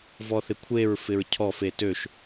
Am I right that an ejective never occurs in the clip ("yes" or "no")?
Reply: yes